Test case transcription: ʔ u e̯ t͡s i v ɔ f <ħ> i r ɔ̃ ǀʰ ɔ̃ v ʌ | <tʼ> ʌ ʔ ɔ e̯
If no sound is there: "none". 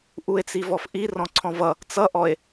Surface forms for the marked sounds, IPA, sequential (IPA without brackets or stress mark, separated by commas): ʔ, t͡s